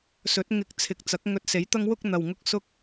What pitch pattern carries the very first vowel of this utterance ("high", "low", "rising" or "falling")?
rising